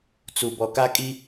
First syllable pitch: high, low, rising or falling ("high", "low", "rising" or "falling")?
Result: low